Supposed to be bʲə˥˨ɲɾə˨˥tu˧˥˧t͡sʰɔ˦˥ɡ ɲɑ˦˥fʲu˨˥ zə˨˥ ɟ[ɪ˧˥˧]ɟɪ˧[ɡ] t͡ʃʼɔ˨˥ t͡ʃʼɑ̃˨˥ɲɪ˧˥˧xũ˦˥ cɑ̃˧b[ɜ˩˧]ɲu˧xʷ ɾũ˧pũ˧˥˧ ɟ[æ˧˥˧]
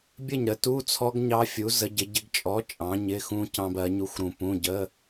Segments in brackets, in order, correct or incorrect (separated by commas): incorrect, correct, correct, incorrect